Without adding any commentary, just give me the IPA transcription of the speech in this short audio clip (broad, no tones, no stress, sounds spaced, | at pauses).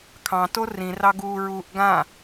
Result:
kʰ ɑ̃ t o r ĩ r ɑ ɡ uː ɹ uː ʔ ɡ ã